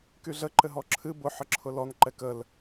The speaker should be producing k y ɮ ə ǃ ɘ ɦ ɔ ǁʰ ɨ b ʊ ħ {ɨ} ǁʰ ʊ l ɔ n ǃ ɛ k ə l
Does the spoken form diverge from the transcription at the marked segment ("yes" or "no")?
yes